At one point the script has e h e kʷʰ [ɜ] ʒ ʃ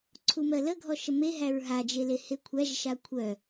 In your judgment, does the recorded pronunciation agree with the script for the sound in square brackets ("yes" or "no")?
no